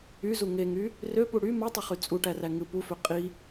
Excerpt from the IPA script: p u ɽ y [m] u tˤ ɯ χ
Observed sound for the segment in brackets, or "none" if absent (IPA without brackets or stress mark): m